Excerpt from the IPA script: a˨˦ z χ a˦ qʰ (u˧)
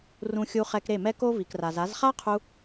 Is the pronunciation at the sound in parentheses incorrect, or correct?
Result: correct